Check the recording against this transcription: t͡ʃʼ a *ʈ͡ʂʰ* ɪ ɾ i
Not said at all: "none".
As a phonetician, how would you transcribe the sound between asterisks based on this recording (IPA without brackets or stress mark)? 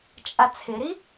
t͡sʰ